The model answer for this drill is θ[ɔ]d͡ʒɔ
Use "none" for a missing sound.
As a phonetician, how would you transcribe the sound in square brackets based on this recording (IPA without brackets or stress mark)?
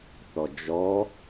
ɔ